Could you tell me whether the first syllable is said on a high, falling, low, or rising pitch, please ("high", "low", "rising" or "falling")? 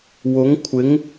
rising